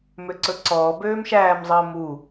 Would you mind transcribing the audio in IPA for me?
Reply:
m ø ǀ ɵ ǀ ɔː b øː m ʃ æː m zˤ əː m u

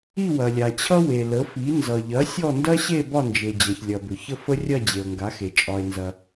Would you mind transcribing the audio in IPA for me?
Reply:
i˥˧ w ɐ˨ lʲ a˨ t͡ɕʰ ʌ˥ w e˨ l ə˨˥ f i˨˥ n z ʌ˨ ʎ ɐ˨˥ sʲ ɔ˥˧ n d ɐ˥ ɕ e˥˧ b ɒ˥˧ n d͡ʒ e˨ d͡ʑ ɐ˨ ç lʲ ɐ˨ b ʏ˨ ç ə˥˧ f ə˥ rʲ ɐ˥˧ d͡ʑ e˨ o̯ ŋ ɡ a˨˥ x e˨ t͡ʃʼ ɒ˨ e̯ n z ɐ˨

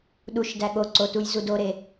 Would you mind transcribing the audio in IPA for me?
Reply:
ɗ u ʃ d æ ɠ o ǀ o t u j z u d o ɾ e

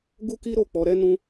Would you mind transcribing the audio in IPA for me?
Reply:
ɡ u˦ k i˦ ɾ o˦˨ k͡p ɔ˨˦ ɾ ɛ˦ n ũ˧

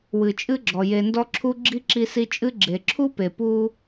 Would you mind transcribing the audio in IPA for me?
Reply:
w ɨ˩ t͡ʃʼ ɨ˦ ɡ͡ǁ ɔ˩ j e˨ n d ɔ˦ ǁʰ u˦ ɡ͡ǁ i˥ ǁ i˦ s i˦ t͡ʃʼ ɨ˥ ɡ͡ǁ e˩ ǁʰ u˥ p e˩ p u˦

